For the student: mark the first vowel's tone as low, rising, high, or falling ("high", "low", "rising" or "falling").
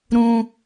high